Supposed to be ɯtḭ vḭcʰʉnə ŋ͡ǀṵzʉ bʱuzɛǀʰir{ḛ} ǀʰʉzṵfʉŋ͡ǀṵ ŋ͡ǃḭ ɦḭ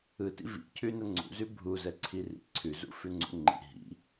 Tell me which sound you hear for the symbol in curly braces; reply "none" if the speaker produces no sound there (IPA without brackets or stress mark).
ḭ